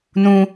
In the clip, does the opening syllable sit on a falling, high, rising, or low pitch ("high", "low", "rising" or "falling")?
high